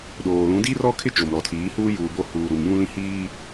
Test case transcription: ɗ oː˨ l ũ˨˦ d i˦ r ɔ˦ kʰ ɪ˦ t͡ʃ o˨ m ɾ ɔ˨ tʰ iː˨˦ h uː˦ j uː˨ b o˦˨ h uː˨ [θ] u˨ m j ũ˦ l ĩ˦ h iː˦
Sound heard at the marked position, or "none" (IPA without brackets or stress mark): ɾ